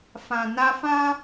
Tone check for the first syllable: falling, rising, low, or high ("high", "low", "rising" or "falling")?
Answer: low